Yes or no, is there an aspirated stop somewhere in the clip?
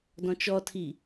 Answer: yes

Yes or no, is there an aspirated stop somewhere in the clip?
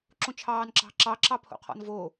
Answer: yes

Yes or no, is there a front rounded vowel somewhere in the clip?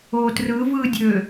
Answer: yes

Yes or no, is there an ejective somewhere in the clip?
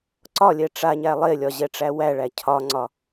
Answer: no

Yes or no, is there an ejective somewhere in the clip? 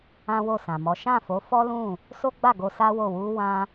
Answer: no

